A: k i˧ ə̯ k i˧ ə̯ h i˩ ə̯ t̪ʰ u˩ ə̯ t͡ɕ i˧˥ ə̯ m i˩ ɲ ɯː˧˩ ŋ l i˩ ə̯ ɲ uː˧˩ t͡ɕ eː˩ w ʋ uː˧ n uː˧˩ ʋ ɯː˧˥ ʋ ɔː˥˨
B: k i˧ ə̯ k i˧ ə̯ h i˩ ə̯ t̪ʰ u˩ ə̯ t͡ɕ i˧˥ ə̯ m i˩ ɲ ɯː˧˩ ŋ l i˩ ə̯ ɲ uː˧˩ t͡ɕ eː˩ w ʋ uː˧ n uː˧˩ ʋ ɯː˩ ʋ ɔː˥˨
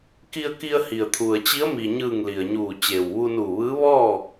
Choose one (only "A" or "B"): A